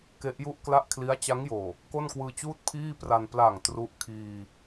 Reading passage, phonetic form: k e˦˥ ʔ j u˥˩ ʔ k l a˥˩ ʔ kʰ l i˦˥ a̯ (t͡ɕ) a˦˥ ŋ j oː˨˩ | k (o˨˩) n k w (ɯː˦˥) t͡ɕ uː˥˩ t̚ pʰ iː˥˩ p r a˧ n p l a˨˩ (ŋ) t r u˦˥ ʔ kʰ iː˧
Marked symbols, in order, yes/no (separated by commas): yes, no, no, yes